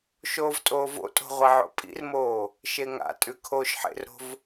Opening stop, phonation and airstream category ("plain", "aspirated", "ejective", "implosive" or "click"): ejective